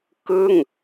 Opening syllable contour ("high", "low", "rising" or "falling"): falling